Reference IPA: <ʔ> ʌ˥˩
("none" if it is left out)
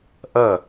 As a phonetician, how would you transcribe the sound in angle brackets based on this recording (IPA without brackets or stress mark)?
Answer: ʔ